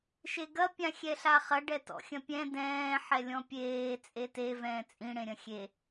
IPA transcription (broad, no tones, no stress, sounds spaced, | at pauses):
ʃ e ɡ ɐ pʲ ã xʲ ɛ ɬ a χ ɐ ɖ ɛ t ɔ̰ xʲ ɐ̃ pʲ ɛ̃ d ɛ̃ː ħ ɛ lʲ ɔ̃ pʲ eː t͡sʼ e t e v ɛ̃ː t͡sʼ ĩ ɽ ẽ ɾʲ ɐ̃ xʲ e